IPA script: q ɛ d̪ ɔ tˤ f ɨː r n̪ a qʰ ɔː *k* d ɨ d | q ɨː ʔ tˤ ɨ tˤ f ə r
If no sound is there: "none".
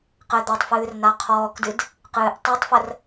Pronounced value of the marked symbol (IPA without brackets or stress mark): k